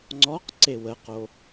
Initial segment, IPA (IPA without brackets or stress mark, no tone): ŋ͡ǀ